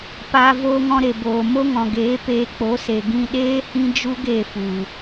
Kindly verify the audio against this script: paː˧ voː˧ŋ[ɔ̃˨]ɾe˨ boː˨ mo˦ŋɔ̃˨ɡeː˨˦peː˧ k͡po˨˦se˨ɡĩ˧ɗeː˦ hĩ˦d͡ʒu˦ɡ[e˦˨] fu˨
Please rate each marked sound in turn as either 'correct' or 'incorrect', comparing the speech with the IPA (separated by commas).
incorrect, correct